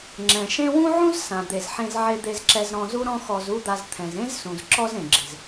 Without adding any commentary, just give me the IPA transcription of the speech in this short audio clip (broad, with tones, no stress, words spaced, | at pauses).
ŋ͡ǁɛ̃˩ʃẽ˥ wũ˥ʕũ˥z sã˩ d̪e˩zħẽ˧z ʕe˧d̪e˧zǁɛ˧z ɾɔ̃˧zu˥ɾɔ̃˥ xɔ˧zu˥d̪a˧z t̪ʰɛ̃˩zẽ˥zsũ˩z ǁɔ˥zẽ˩ɡ͡ǁɪ˩z